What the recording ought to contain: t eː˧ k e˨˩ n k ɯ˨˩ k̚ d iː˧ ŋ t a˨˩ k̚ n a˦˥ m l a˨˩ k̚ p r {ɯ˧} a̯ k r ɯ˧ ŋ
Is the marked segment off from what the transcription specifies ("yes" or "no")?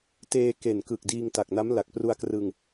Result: yes